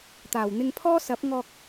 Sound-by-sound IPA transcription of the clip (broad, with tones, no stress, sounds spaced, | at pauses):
t̪ aː˨˩ w n̪ ɪ˧ ŋ pʰ ɔː˥ s ɐ˨˥ p̚ ŋ ɔː˧ k̚